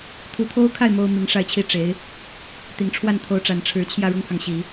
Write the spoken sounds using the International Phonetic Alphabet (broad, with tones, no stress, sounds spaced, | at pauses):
t̪ʰ u˧˥ t̪ʰ o˥ ʊ̯ kʰ a˥˩ ɪ̯ m o˥ ʊ̯ m i˧˥ ŋ ʂ a˥˧ ɪ̯ t͡ɕʰ i˥˩ ʈ͡ʂ e˧˥ ɪ̯ | t̪ i˨˩ ŋ ʈ͡ʂʰ w a˥˩ n t̪ʰ o˧˥ ʊ̯ ʈ͡ʂ a˨˩ n ʈ͡ʂʰ ɻ̩˧˥ t͡ɕʰ j ä˥˩ ɻ ʊ˥ ŋ pʰ ɑ˨ ŋ ɕ i˨˩˦